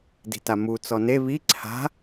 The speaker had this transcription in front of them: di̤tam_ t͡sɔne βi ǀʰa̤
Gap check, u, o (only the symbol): u